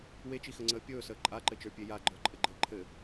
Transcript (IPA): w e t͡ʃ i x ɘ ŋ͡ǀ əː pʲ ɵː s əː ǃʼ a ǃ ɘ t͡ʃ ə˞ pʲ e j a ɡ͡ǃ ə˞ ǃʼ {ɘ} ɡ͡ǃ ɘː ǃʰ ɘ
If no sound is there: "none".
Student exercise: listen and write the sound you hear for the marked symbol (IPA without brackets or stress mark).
ɘ